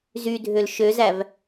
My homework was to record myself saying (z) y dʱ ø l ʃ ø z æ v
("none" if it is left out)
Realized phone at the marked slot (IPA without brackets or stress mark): z